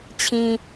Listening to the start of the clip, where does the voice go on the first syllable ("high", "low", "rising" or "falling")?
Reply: low